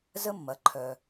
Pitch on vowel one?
high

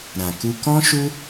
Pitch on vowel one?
low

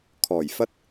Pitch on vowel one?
low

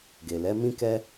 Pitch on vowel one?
low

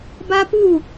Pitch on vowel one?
high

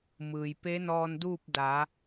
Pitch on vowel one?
low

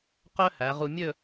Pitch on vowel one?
high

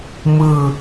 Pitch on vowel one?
falling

